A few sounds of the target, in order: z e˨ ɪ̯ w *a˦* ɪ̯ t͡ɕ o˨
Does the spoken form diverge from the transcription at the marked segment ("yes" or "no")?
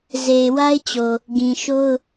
no